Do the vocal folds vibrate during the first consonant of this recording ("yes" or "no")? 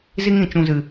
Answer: yes